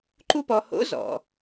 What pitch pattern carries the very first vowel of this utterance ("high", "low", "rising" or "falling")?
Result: high